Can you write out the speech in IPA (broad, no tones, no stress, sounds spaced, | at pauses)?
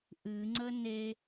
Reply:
ʔ ɨ ŋ͡ǀ ə n e